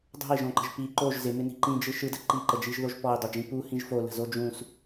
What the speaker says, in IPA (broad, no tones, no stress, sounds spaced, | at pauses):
dˤ o̤ i̯ ʒ õ ǃ ə̤ ʒ p i ǃ o ʒ z ɪ m ɪ n i̤ ǃ ĩ d͡ʒ ɯ ʃ ɯ d ə ǃ i ǃ ə d͡ʒ i ʒ ð o ʒ p ɔ i̯ dˤ o d͡ʒ ĩ p u h ĩ ʒ f o l ə̤ z o d͡ʒ ũ s